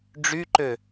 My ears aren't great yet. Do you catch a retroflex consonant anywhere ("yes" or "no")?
yes